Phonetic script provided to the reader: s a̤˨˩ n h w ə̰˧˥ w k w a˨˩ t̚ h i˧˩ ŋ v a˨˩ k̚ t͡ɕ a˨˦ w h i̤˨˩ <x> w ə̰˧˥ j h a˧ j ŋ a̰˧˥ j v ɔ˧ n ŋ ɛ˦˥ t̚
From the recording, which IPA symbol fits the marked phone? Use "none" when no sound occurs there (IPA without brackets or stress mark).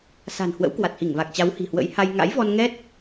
h